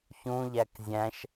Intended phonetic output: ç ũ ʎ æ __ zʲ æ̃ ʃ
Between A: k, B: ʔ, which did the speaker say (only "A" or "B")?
A